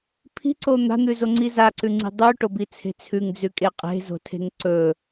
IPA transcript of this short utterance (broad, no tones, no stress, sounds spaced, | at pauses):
pʰ i̤ ǀ o n̪ a̤ n̪ ʉ z o ŋ͡ǀ i z a ǀ ʉ ŋ͡ǀ i̤ dˤ ʉ ʈ o b i t͡sʰ e̤ t͡sʰ ʉ ŋ d͡z ʉ kʼ e qʼ e̤ z o̤ tʰ e̤ ŋ ǀ ɵ